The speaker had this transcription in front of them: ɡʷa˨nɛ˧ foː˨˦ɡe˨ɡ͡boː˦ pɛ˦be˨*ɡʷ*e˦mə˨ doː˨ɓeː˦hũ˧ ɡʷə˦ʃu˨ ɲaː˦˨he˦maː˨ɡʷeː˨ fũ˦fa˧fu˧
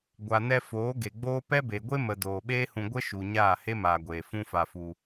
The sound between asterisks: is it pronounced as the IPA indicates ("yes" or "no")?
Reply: yes